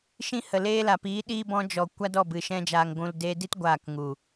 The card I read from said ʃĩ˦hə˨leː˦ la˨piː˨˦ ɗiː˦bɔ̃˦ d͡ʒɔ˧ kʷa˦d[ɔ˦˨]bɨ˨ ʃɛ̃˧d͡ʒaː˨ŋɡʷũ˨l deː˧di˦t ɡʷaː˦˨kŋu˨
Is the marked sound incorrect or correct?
correct